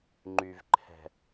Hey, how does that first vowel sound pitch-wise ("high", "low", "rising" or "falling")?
low